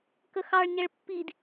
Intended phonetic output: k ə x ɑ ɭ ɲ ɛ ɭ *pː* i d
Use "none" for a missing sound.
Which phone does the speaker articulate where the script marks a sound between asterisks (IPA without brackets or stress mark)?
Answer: pː